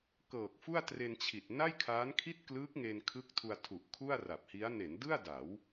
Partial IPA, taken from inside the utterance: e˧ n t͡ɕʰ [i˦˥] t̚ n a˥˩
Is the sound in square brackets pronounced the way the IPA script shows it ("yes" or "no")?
no